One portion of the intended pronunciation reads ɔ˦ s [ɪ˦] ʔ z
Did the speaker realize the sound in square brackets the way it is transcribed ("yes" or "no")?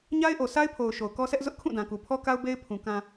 no